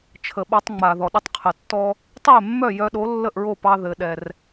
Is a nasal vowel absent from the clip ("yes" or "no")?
yes